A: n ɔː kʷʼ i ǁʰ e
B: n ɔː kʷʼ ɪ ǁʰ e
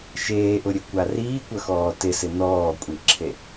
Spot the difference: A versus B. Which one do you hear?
A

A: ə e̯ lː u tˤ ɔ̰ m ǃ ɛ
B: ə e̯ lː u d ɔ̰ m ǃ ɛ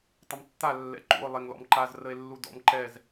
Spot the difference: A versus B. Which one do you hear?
B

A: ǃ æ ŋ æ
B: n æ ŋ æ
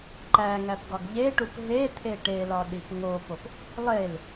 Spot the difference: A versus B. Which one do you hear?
A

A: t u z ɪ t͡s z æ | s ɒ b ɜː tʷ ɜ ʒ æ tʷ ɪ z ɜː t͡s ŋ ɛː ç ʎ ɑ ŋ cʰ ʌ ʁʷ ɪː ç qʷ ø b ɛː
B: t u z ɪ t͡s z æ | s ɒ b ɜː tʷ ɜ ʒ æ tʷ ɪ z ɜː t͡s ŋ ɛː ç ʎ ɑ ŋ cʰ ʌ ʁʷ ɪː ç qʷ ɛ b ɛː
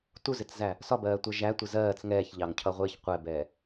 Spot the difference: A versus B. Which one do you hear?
B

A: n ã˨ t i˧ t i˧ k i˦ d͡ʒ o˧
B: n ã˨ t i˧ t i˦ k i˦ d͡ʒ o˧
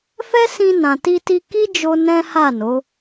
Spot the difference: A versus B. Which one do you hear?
A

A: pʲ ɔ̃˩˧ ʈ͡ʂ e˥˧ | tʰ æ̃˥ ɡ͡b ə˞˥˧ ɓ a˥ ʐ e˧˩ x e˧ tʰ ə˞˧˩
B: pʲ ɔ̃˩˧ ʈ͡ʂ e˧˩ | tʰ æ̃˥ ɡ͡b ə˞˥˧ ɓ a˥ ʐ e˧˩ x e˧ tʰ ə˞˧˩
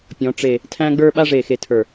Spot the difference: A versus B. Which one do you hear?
B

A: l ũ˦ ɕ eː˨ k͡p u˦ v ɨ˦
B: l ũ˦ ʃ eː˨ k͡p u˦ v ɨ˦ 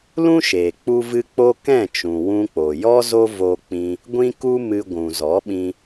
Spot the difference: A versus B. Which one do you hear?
B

